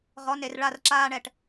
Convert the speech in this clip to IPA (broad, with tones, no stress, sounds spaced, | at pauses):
ʁ ɔ˨˦ n e˨ r ɭ a˦˨ r ǁ aː˦ ɳ ɛ˨ ʈ